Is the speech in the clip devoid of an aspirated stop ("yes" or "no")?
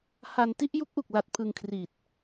no